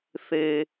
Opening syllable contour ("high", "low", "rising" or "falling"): low